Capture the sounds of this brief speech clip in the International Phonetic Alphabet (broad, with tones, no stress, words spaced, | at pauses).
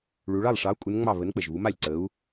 ɭu˩˧ɭɑ˥˩lˠʂɑ˨˥u̯ kʼu˨˥nŋ͡mɑ˥˩ βə˨˥nk͡pə˩ʒβu˨˥ma˥˩lʲ ǀə˨˥u̯